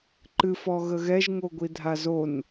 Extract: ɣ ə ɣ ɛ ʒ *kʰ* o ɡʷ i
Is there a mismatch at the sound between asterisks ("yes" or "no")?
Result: yes